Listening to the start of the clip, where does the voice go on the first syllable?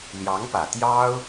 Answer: rising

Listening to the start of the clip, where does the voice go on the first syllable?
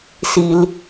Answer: low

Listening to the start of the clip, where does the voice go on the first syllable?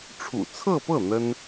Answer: low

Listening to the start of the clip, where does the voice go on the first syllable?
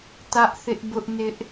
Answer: high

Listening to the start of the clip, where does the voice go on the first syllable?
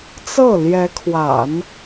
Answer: falling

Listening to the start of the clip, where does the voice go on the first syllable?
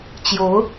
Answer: rising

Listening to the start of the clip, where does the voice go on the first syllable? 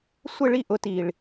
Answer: falling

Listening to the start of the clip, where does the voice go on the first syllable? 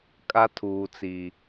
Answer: high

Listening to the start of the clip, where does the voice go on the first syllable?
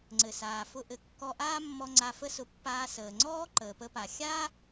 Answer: low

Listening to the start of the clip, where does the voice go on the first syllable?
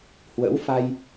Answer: rising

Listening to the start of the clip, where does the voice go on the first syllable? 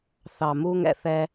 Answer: low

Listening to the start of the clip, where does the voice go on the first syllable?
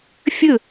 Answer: falling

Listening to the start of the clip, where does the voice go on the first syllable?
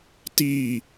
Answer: falling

